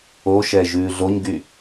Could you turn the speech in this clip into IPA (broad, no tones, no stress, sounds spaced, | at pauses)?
o ʃ ɛ ʒ ʉː ɮ o ɲ ɡ y